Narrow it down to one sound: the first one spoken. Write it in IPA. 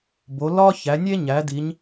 b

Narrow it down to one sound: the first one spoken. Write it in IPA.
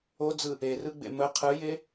o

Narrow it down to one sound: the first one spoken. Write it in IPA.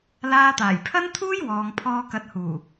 l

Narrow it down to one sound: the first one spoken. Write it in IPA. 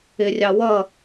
ɪ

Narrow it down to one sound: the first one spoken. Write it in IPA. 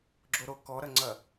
ɡ͡ǁ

